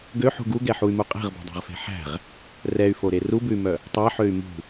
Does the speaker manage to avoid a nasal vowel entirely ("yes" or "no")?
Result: yes